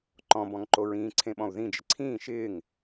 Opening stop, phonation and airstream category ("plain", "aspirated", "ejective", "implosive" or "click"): click